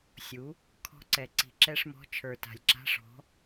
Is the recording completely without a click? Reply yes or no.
no